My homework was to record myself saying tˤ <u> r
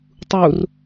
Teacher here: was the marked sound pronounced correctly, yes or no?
yes